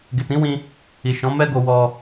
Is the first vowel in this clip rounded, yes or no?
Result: no